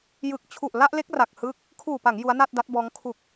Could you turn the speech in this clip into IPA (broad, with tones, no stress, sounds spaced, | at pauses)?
j ɯ˨˩ k̚ t͡ɕʰ u˨˩ ʔ l a˥˩ ʔ l e˦˥ k̚ r a˨˩ k̚ h ɯ˦˥ k̚ | kʰ uː˨˩ p a˩˦ ŋ j u˦˥ a̯ n a˥˩ t̚ d a˦˥ t̚ b ɔː˦˥ ŋ kʰ u˨˩ k̚